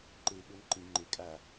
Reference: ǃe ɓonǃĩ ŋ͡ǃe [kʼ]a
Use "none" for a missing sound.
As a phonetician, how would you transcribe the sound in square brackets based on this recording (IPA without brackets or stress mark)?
kʼ